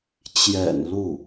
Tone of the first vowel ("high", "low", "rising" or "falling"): low